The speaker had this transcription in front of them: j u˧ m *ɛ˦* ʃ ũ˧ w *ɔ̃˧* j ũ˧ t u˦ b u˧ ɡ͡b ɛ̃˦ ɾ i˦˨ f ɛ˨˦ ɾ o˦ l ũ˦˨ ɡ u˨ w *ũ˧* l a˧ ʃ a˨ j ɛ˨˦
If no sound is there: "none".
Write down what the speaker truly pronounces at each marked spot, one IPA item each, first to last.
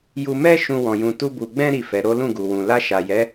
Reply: ɛ˦, ɔ̃˧, ũ˨

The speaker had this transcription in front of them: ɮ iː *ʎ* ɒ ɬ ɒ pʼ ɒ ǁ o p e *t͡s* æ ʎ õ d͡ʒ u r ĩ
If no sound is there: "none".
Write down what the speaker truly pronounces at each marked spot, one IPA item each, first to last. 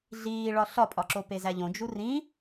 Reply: ɭ, z

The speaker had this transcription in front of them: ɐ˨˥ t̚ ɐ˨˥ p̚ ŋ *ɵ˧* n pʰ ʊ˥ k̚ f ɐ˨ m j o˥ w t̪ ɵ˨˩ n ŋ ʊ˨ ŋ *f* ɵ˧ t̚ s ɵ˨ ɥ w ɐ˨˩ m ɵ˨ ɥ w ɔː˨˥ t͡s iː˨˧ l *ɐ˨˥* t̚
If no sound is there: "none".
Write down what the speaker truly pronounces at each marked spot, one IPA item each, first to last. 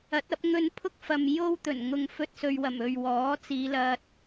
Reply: ɵ˧, f, ɐ˧

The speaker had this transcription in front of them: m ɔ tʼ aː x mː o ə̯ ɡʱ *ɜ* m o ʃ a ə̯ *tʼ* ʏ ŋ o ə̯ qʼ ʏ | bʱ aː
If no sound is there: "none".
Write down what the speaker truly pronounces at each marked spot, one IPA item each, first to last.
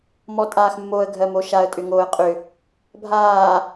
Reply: ɜ, tʼ

